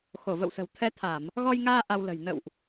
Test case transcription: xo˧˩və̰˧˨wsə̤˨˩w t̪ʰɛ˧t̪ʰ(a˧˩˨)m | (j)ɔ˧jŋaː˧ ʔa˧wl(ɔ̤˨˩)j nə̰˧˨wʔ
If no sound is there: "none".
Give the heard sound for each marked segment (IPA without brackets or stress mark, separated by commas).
a˧˩˨, ɣ, ə̤˨˩